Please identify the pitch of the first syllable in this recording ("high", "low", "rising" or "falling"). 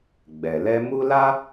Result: low